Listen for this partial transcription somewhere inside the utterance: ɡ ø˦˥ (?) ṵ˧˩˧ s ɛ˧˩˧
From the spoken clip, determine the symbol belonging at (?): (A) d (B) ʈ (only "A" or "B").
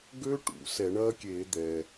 B